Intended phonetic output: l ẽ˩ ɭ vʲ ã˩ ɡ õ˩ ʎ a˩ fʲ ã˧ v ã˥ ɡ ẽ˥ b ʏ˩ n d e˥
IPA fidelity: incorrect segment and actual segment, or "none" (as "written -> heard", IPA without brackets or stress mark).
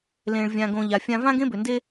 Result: none